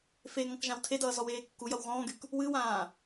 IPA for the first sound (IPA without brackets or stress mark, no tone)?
f